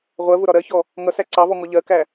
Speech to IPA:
ʁʷ ɜ v ʊ ɾ ɒ ɾ ɜ ç ɔ | ŋ ʌ s æ ǀ ɑ v ɔ ŋ ɔ ʎ ɜ k æ

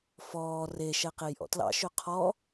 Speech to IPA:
f ɔː r e ʃ ɛ q e j ʔ ɔ̰ t l ɑ̰ ʃ ø qʰ ɔ

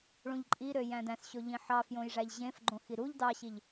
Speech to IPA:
ɭ ũ ʎ ǃʼ i ɾ ø j æ̃ d æ̃ s ɕ o ʎ ĩ ħ ɑ f j õ j ʐ æ ʎ ʑ ẽ f ɡ͡ǃ õ x i ɾ u ʎ d ɑ ɕ i ʎ

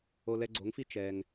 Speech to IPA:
o˧ l ɛ˧ ɡ͡ǀ o˨˦ ŋ f i˦ t͡ʃ ɛ˧ ŋ

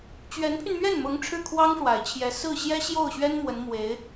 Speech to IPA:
t͡ɕ ɥ ɛ˧˥ n pʰ y˧ n m ɥ ɛ˥˩ n m ʊ˧˥ ŋ ʈ͡ʂʰ ɻ̩˥˩ kʰ w ɑ˥ ŋ ʂ w a˨˩ ɪ̯ t͡ɕʰ j ɛ˧˥ s ɹ̩˥˩ ɕ j ɛ˥ ɕ j o˥˩ ʊ̯ ɕ ɥ ɛ˥ n m w ə˧˥ n m w e˧˥ ɪ̯

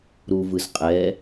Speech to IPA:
ɾ u v ɯ z qʼ ɛ

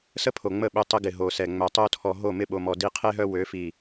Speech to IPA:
s ə˦ pʰ o˨ ŋ͡m ə˦˨ ɓ ø˧ tˤ ə˧ ɡ ɪ˨ ɦ o˨ s ɛ˨ ŋ͡m œ˨ tˤ o˧ tʰ ɔ˨ ɦ o˦˨ m ɪ˦˨ ɓ o˨ m ɔ˨ d i˧ qʰ e˦ ɦ œ˦ w ø˨˦ f i˨

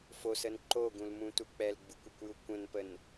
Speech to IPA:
f o s ə n ǃ o ɡ ũ l m ũ t u k͡p ɛ l ɡ͡b u kʷ ə kʷ j u kʷ ə̃ n p ə n

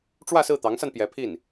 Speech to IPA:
ʈ͡ʂ w ä˥˧ s ɹ̩˥˩ t̪ ɑ˧˥ ŋ s a˧ n p j ɛ˧˥ pʰ i˥˩ n

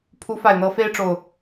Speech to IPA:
pʰ u˨˦ f a˨˩ ɪ̯ n̪ ɤ˨˦ f e˦ ɪ̯ ʈ͡ʂ o˨˩ ʊ̯

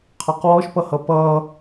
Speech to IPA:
qʰ ɑ q w ɔ ʃ p ʌ h ʌ p ʌ

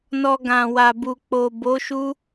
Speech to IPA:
n ɔ˧ ɡ ã˨ w a˨ b u˨ k͡p o˨ b o˨˦ ʃ u˦

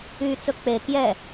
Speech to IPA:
y t͡s ɵ k͡p e k j ɛ

